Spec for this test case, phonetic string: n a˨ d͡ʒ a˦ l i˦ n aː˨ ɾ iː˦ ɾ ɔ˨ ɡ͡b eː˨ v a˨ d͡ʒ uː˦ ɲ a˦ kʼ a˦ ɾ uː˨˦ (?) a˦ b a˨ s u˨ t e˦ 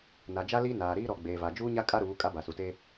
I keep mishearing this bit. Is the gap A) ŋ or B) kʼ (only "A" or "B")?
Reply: B